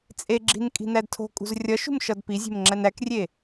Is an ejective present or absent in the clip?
present